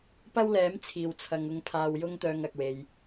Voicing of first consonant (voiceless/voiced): voiceless